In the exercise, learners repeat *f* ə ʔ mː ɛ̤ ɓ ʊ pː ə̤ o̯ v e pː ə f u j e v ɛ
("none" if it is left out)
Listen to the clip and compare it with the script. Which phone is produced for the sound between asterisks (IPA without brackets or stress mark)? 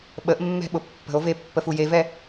ɓ